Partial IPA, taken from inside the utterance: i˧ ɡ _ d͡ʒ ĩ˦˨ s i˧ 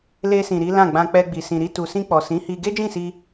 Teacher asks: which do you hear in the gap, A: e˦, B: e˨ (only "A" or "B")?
A